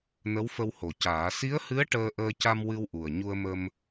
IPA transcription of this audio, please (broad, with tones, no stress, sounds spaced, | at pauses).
n ə˧˥ w f ə˧ w h o˨˩ c aː˨˩˦ s i˧˥ ə̯ h ɨ˧˥ ə̯ ʈ əː˧ ʔ əː˧ c a˧ m w ɨ˧ w ʔ u˨˩ ə̯ ɲ u˧ ə̯ m ə˧ m